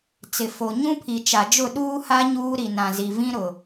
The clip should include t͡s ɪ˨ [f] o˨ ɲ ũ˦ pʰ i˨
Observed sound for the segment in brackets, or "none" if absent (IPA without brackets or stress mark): f